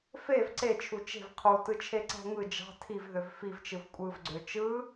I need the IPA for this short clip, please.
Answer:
f e v ǀ e t͡ʃʰ u t͡ʃ e̤ v qʰ u t ɯ t͡ʃʰ e ǀ æ̤ ŋ ɯ d͡ʒ ɑ̤ tʰ i v ð ø v f i v t͡ʃ ɯ v kʷʼ ɯ v ɡ͡ǀ ø t͡ʃ ɯ

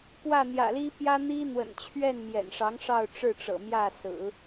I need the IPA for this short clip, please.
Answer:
p w ä˥˩ n̪ j ä̰˨˩ l i˥ p j ä˥ n̪ i˥ n̪ w ə̰˨˩ n t͡ɕʰ ɥ ɛ˥˩ n m j ɛ̰˨˩ n ʂ ɑ˧˥ ŋ ʂ ɑ˥˧ ʊ̯ ʈ͡ʂ ɻ̩˥˩ ʈ͡ʂ ɤ̰˨˩ m j ä˥˩ s ɹ̩˨˩˦

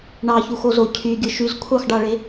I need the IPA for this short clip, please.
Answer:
ɳ ɑ ç u x o z o cʰ y ɡʲ ɯ ʃ y z kʷʰ ɑ x ɖ ɑ ɭ e

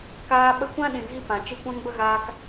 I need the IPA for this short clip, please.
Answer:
k aː˧ ɓ ə˧ kʷ ã˦ ɗ ĩ˨ ɣ i˦ p ã˨ t͡ʃ ɨ˧ kʷ ã˦ ŋ b ə˦ ɣ aː˧ k

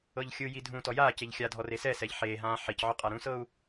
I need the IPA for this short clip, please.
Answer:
ɤ ʎ xʲ ɯ j i dʱ ũ t ɔ j aː c e ʎ xʲ a dʱ ɔ r e s ɛ s ɛ ʎ ħ eː ɦ ãː ħ i c ʕ ɔ qʼ a ɾ ũ s ɤ u̯

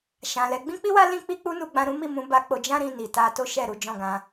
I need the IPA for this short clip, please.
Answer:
ʃ ã˨ l ɛ˨˦ ɡ͡b ĩ˦ k͡p i˦ w a˦ l ĩ˦ k͡p i˦ k͡p u˦ n u˧ ɡ͡b ã˧ ɾ ũ˦ m i˦˨ m ũ˨˦ b a˧ k͡p o˧ d͡ʒ ã˦ ɾ ĩ˧ n i˨ t a˧ t o˦ ʃ ɛ˦˨ ɾ u˨˦ d͡ʒ ɔ̃˦˨ ɡ ã˨˦

